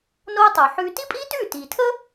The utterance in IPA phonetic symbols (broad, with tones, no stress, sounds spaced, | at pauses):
n oː˧ tˤ o˩ ħ ʉː˧ t i˥ pʼ iː˥ t ʉː˥˩ t iː˩ tʰ əː˥